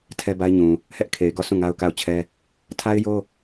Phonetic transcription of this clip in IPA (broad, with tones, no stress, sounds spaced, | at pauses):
tʰ ɛ˦ b a˦ ɪ̯ ɲ ũ˨ | h ɛ˦ ʔ kʰ e˨ ɪ̯ ɡ ɔ˦˨ sʰ ũ˦˨ ŋ a˦ ʊ̯ k a˦˨ ʊ̯ t͡ɕʰ ɛ˦ | tʰ a˦ ɪ̯ j o˦